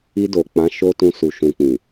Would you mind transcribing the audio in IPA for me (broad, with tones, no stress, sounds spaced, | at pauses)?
i˧ d o˨ k͡p ã˨˦ ʃ o˦ t ũ˧ s u˨ ʃ ũ˨ k͡p ĩ˨